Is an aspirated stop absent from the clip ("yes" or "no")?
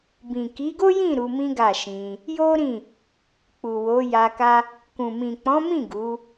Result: yes